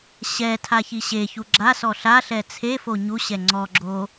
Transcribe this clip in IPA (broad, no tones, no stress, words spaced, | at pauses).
ɕɛtʰa çiɕeçu ɡ͡ǁasɔ ɬaɬɛ t͡sʰefo ɲuɕɛ ŋ͡ǀɔɡ͡ǁo